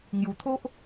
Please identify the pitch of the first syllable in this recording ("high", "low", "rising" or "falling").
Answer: low